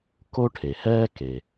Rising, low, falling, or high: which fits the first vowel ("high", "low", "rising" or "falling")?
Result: high